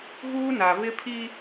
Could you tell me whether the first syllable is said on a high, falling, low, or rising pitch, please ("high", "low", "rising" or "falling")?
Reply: high